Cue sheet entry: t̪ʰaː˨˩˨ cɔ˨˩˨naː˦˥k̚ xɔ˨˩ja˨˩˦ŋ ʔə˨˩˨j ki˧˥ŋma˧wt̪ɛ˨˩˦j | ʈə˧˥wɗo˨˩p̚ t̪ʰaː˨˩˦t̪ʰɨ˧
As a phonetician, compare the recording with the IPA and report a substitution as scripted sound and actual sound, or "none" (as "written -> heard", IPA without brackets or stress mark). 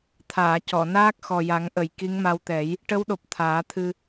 none